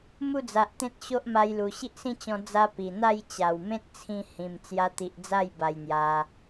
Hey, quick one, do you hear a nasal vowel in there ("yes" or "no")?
yes